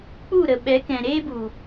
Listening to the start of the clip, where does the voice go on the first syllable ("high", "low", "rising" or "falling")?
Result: falling